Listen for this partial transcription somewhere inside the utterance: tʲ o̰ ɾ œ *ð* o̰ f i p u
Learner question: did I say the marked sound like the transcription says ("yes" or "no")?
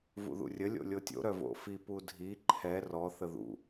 no